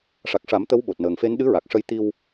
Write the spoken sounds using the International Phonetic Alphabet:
ʂa˨˩k̚ʂa˨˩˦m t̪ə˧˥wɓo˨˩t̚nəː˨˩ŋfe˧˥n ɗɨ˧˥ɹa˨˩k̚ʂə˧j t̪i˧w

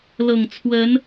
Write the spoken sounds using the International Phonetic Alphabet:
lɤ˨˩ŋ t͡sʰwə˨˦n

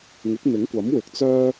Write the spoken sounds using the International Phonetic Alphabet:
ŋɪ˨˥k̚ n̪ɪ˨˥ŋkʷɐ˨˥m wɪ˨k̚t͡sœː˥

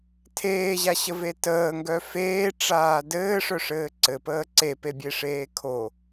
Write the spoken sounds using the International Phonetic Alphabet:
tʰeːʑaɕəve təːŋɡœ feːʈ͡ʂaː dɘːʂœʂɘː ǀɘpəː ǀepebʲeʂeː kʰo

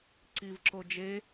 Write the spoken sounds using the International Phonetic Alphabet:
ǀivǁo d͡ʒe

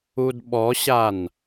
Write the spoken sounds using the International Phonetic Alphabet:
udɓɔɕan

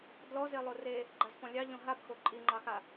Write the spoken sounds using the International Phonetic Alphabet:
dlɔze lˠore | ɡ͡ǃazpɔ̃lʲɑʎɔ̃ ɦabxo ǃʼiŋ͡ǃɑxa

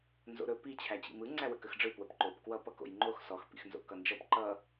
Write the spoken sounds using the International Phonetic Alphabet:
nzo̰ɾɵ pi t͡ɕʰæt͡ɕḭmɯ ŋ͡ǀæwəkəxɖ͡ʐɯ pwəpǃop kwʌ pʌko̰jŋ͡ǃox sɔx pḭxnzo̰kʌnd͡ʒʌp ǃʌ

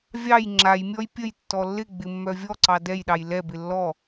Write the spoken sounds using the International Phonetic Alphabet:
vʲɑj ŋ͡ǁajmʲɔj pʲəj tːɔlːɪɡ͡bɪ mːœvʲɔǀɑ dɛjɗɑj lɛbɪ lːɔ

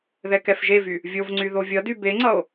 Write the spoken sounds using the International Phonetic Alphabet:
ðɛkɛfʒevy | vʲovŋ͡ǀy ðovʲʌdy beŋ͡ǀʌo̯

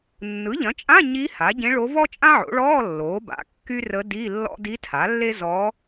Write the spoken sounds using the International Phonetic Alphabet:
nːɯ˩˥ʎɐ̃˩˥t͡ʃʼã˧˥˧ ɲi˧˥ ha˩˥ɟẽ˧˥ɭo˧˥ vɔ˥t͡ʃʼã˥ʕo̰˩˥ɭɔː˧˥˧ lːoː˩˥ba̰˩˥ kːy˥rə˧˥di˧˥˧ lːɔ̰˥ di˧˥tʰa˩˥lːe˥ zɔ˧˥

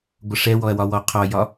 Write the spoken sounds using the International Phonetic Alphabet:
ɡʷʌʂɛwɔɐ̯ wɒwɔqʰɒjɒ

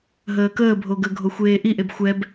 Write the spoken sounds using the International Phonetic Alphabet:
ɦəːkəːbʱo ɡəɡʱo xʷeːʔiʔeb xʷɛb

